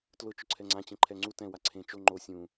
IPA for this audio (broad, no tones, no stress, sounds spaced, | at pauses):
t l ʊ t͡ʃ ʊ ǀʰ ɛ ŋ͡ǀ ã t͡ɕ ẽ ǃʰ ɛ ŋ͡ǀ u t ɛ̃ w a ǀʰ ẽ t͡ʃ o ŋ͡ǃ o sʲ ũ